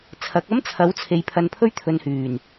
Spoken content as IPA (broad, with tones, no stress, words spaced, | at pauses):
t͡sʰɐ˨˥k̚ ɐ˥mt͡sʰɐ˨˥w t͡sʰe˨jpʰɐ˧npʰɵ˥ɥ t̪ʰɵ˨nhyː˨˩n